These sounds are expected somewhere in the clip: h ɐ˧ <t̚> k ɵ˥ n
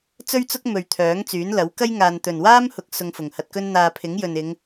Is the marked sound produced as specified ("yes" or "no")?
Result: yes